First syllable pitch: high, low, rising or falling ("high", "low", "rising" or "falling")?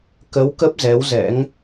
rising